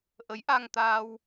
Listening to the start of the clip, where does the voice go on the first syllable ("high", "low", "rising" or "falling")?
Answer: rising